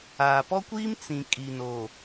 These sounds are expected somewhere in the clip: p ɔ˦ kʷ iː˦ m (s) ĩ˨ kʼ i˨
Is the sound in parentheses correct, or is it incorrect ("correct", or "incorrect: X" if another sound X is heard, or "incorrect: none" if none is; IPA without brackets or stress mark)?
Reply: incorrect: t͡s